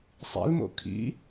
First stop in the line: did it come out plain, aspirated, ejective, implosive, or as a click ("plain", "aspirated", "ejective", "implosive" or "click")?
aspirated